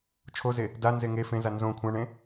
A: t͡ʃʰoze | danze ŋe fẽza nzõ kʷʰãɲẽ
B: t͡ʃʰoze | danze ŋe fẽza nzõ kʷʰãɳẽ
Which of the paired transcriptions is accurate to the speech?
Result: B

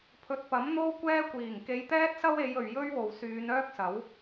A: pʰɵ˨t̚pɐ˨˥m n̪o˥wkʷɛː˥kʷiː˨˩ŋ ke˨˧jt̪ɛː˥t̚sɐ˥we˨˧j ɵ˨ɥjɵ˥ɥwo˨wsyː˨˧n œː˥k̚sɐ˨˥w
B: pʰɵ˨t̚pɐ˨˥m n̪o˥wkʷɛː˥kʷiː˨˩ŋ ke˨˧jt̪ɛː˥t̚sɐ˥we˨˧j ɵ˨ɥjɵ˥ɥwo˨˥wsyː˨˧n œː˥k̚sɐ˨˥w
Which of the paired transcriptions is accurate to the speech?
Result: A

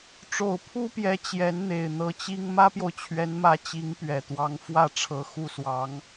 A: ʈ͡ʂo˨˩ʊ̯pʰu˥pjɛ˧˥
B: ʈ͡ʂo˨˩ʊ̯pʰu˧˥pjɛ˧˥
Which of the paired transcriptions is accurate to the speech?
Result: A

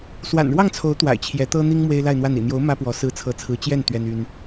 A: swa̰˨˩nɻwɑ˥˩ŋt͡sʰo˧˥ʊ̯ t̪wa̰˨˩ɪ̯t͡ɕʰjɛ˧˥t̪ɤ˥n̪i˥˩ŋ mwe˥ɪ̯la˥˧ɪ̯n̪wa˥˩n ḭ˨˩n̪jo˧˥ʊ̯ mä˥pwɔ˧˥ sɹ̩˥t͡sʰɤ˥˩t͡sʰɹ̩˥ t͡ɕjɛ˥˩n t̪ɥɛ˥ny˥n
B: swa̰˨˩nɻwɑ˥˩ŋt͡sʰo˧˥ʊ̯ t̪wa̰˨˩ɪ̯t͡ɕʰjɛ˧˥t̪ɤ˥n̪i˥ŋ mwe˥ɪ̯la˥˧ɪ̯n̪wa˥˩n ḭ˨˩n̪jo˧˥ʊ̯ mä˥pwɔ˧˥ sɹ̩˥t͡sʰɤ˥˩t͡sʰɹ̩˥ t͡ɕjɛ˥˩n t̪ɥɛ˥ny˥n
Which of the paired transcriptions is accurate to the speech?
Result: B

